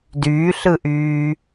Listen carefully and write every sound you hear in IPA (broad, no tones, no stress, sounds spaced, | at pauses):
d yː ɬ ɯ ʔ yː